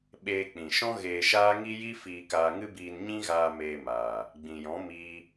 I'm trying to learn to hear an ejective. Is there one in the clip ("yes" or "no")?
no